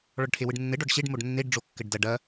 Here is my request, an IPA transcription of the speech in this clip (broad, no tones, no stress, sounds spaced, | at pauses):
ɭ ɔ ɖ ʈʰ e w ɯ ɖ nː ɘ ɖ ɔ ɖ ɕ e ɖ m o ɖ nː e ɖ ɖ͡ʐ o kː ɘ ɖ d ɐ ɖ ɐ